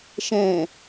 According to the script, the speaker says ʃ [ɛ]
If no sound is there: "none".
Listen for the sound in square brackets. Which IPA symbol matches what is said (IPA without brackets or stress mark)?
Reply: ɛ̃